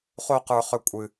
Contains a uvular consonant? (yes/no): yes